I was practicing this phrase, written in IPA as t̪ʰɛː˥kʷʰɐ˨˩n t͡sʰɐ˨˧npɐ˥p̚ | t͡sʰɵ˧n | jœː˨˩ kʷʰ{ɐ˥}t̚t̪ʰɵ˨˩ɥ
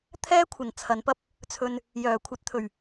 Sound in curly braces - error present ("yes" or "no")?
yes